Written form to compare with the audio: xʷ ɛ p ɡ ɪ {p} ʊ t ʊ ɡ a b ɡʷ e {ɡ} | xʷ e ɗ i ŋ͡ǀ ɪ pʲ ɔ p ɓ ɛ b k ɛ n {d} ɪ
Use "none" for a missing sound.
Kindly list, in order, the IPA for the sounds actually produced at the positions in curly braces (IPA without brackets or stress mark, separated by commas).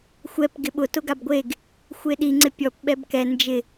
ɓ, ɡ, d͡ʒ